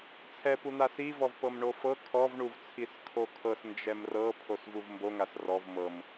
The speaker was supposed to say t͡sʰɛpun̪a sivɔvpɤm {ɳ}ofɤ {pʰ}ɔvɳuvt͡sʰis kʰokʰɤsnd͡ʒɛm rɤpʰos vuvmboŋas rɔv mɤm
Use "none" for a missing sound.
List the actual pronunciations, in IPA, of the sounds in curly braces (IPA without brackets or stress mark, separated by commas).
ɳ, kʰ